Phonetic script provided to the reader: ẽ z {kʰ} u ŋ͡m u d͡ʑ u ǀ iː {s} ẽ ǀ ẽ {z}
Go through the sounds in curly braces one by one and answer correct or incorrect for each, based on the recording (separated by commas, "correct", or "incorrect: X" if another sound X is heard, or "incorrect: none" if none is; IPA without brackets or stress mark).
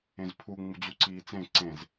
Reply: incorrect: pʰ, incorrect: t͡s, correct